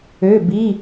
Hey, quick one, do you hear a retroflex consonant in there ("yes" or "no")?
no